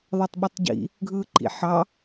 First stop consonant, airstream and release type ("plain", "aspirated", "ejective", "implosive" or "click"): plain